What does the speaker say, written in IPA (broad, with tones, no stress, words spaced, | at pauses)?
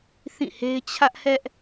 θĩ˦˨he˦ɪ̯ t͡ɕʰä˦ʔ hɛ˦ʔ